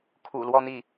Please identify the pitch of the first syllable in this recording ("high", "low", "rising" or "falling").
low